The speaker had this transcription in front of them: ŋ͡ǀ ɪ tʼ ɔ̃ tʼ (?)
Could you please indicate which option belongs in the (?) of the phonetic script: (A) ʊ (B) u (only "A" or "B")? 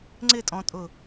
A